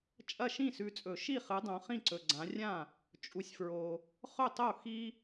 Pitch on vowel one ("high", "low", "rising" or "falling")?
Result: falling